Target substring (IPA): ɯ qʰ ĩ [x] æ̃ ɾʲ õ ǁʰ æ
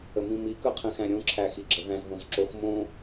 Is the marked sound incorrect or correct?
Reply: correct